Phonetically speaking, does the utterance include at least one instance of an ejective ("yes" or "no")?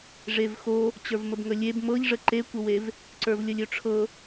no